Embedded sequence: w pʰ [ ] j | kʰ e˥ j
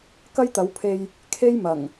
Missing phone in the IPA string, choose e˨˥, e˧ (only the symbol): e˧